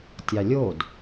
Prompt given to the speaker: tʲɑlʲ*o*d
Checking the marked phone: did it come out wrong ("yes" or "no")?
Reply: no